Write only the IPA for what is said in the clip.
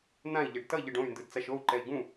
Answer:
n̪ ã i̯ ʎ ɛ ɖ t ʌ ʎ ɯ ɖ õ y̯ n d ɯ d t͡s a ʃ o u̯ ǃ ɛ i̯ ɡ ũ

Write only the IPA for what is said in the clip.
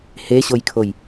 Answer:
h e ɕ o j kʰ o j

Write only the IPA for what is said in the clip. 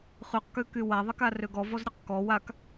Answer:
χ y q k ø k y w a ðˤ i k a r ø ɡ ɔ v ɔ z ɾʲ ø q k ɔ w a k

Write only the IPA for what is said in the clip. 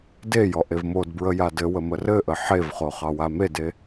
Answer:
d e j ɔ ʔ e v m o d b ɹ ə j a d ɘ w ə m ə r ɘ ʔ ə ħ e v χ o χ ɑ w a m e d e

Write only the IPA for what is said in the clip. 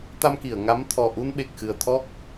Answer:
t̪ a˧ m k i˨˩˨ ə̯ ŋ a˧˥ m t̪ʰ ɔ˨˩ ʔ u˧ n ɓ e˨˩ k̚ x ɨ˨˩ ə̯ t̪ʰ ɔ˦˥ k̚

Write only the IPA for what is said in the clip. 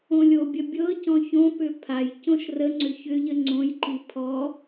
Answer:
õ lʲ o bʲ ə bʲ ɤ c ɔ̃ ç õ p ʏ pʰ a j c õ ʃ r ə ŋ͡ǀ ʏ ç ʏ ʎ ə ŋ͡ǀ õ j ǃ i pʰ ɔ

